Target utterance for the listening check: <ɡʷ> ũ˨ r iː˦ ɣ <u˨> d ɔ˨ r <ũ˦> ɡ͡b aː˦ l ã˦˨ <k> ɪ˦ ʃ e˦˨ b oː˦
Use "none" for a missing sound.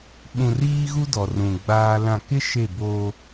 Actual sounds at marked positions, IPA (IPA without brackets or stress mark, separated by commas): ɓ, u˦, ũ˨, k